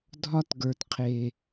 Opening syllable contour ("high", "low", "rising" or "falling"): high